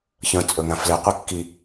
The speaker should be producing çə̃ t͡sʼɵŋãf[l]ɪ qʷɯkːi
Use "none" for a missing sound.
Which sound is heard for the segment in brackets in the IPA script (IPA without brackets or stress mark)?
l